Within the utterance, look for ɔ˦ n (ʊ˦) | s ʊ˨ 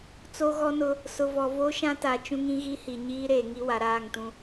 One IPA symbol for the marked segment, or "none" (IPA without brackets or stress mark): ʊ˦